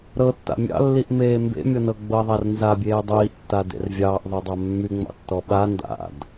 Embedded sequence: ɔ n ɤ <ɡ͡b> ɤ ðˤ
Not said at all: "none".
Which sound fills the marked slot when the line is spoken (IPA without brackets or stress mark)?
ɡ͡b